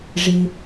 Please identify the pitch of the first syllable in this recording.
low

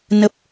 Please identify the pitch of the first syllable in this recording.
low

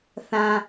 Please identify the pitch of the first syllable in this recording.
low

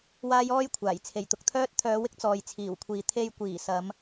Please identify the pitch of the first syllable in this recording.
high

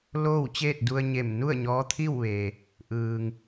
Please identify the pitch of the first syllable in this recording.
falling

